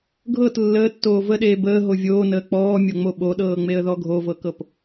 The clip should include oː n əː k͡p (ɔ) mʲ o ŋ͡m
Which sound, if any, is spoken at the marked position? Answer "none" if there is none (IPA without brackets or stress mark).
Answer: ɔː